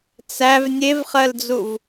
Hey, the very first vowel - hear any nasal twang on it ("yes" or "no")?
no